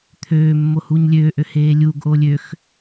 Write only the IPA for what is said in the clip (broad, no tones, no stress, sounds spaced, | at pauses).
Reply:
t̪ʰ øː mː o h uː ɲ lʲ øː ʔ ø h eː lʲ uː ɡ ʔ oː lʲ ø x